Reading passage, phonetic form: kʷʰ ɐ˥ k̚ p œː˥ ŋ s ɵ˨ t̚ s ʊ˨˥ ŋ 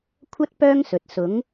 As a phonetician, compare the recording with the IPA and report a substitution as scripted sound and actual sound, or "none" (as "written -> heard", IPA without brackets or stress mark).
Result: k̚ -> t̚